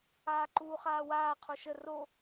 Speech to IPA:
aːǃuːχaːwaː qʰuʃə ro

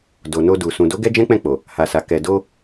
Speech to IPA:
do˨no˧ du˨ sũ˨do˨˦ ɡɛ˦d͡ʒɛ̃˦k͡pɛ̃˦˨k͡po˨ | ha˨sa˨ kɛ˨do˧

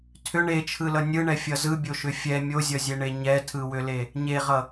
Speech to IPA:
tʰʏ ɳet͡ʃʰɯlʌ nʲɯɳɛfʲʌ zɯbʲoʃʏ fʲɛ mʲozʲʌzʲeɳe ɲɛtʰɯwʏle | ɲeʁʌ

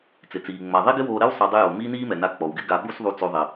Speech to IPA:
t͡sɪ˩t͡siː˩ ŋ͡ma˩ ðˤi˥ɡɪ˥woː˧ɾɛ˥w sˤɛ˧dˤɪ˥joː˩ miː˥niː˥mɛ˩na˧ k͡pɔ˩wɡɪ˥ɡa˧ ɓu˥sðˤu˧ t͡so˧ðˤɪ˩

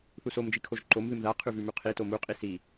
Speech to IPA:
θusom d͡ʒikʰoʒǃom ðɨmða qʰʉvʉmʉqʰi tomu qʼisi

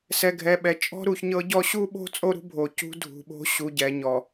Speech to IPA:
sɛ˨ɡʱɛ˨ɓɛ˨ t͡ʃʼɔ̤˦ɾu˨çɲɤ˦ɟɔ˦ ɕu˦ɓo̤˦ t͡sʼo˦ɾṳ˦ bʱo˨ cṳ˦dʱṳ˨ɓo̤˦ ɕu˨ɟɛ˨ɲɔ˨

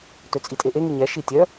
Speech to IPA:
tøt͡sʼitʼeʔe ŋiɲɛ ʃitʲœ

